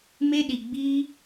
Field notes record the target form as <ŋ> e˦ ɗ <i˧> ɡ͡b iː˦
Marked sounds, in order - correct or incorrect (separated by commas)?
incorrect, correct